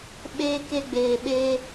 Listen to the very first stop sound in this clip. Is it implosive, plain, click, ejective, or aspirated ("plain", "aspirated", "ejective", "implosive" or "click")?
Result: implosive